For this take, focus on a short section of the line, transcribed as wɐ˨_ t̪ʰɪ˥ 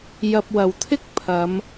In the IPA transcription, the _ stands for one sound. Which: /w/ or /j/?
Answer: w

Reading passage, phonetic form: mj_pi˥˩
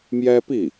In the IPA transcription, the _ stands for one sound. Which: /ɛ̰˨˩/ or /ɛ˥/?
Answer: ɛ˥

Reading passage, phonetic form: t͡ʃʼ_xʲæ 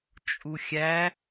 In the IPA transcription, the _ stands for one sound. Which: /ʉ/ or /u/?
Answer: u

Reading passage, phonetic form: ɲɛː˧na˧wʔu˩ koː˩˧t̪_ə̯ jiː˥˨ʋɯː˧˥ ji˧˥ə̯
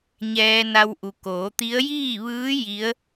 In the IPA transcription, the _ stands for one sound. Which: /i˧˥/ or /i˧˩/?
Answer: i˧˥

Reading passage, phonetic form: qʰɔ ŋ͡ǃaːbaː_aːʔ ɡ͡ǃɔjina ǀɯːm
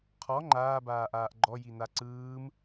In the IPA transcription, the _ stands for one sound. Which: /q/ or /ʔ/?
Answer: ʔ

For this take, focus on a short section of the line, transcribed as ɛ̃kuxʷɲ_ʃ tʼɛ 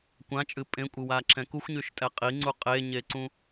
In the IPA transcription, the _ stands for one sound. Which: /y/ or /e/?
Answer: y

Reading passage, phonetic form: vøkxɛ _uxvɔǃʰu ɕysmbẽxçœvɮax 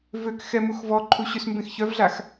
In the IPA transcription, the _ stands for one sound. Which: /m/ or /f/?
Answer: m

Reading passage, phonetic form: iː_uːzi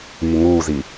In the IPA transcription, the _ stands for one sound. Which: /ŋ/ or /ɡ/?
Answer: ŋ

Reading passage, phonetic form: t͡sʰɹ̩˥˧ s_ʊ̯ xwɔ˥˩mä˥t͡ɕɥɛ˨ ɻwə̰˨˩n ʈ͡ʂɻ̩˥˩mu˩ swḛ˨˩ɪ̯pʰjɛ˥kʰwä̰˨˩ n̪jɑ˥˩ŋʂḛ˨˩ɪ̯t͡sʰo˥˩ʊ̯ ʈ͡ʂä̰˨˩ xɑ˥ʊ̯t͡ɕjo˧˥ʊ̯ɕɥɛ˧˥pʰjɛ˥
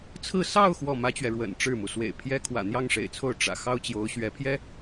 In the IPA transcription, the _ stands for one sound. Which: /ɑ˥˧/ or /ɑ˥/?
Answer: ɑ˥˧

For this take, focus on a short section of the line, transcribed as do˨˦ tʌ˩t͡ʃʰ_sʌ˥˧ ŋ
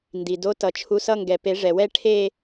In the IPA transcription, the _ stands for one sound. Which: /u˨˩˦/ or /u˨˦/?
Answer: u˨˦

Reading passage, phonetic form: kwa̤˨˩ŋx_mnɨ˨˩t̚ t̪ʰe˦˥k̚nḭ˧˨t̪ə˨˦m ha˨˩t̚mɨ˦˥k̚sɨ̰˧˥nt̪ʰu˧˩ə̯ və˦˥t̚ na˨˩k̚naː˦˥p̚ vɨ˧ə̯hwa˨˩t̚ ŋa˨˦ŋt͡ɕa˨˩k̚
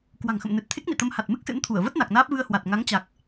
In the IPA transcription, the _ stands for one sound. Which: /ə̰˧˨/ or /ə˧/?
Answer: ə̰˧˨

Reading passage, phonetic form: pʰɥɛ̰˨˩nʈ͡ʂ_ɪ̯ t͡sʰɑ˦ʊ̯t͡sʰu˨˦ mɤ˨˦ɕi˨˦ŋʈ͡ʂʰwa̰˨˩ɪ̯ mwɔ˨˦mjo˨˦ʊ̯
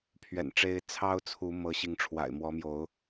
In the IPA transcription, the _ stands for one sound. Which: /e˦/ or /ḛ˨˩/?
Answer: e˦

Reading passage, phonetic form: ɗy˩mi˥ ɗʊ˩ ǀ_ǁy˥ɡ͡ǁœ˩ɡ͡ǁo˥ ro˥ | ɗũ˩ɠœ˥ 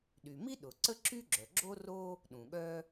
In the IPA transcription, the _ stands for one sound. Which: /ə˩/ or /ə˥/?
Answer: ə˥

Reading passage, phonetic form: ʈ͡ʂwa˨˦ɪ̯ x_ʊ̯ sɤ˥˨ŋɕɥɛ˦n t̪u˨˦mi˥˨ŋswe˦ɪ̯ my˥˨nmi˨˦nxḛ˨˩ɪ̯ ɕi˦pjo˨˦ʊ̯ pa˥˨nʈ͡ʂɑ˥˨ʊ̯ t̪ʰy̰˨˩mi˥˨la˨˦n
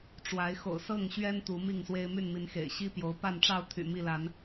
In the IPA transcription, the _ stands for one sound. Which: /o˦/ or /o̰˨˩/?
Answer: o̰˨˩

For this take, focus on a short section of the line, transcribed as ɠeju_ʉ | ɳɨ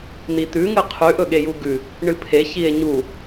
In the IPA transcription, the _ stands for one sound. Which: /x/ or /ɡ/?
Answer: ɡ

